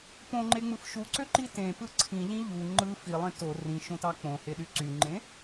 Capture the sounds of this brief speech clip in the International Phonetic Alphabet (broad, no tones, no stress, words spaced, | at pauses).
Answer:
põŋ͡ǃeŋ͡mɯf ʃuǀøǃi tẽpɯ ǀʰĩʎĩ ʎu ŋ͡ǃɯ filˠẽ to rĩʃõtɑ k͡põheɗy ǀyŋ͡ǃẽ